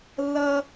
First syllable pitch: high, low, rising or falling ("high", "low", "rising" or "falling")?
high